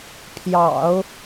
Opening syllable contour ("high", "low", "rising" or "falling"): low